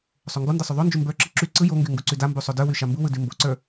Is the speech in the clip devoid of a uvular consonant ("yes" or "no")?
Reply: yes